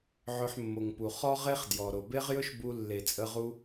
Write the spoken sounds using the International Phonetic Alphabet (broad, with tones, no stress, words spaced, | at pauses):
ʕɵ˧ħmːo˨ŋpu˨ χɔ˦ʁe˦χdjɔ˨ ɾo˨be˦ʁjɵ˦ʃbu˧ lːe˨t͡sʼə˧ʁu˧